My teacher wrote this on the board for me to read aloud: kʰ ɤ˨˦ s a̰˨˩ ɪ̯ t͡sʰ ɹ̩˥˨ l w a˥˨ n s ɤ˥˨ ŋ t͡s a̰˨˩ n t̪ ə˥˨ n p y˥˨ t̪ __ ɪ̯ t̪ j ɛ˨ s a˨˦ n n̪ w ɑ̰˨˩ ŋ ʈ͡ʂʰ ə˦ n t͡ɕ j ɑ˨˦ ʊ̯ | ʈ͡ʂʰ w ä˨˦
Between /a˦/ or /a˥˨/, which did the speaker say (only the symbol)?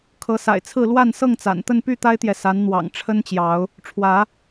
a˦